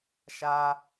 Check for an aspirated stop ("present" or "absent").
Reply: absent